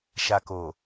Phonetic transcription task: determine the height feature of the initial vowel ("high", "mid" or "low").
low